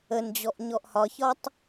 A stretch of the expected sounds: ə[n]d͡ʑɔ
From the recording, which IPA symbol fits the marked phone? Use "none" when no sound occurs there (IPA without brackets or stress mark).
n